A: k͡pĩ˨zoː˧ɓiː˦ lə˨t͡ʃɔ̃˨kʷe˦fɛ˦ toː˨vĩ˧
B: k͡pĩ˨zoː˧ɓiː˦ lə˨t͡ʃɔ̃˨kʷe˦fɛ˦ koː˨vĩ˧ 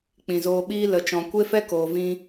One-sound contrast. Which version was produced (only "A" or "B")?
B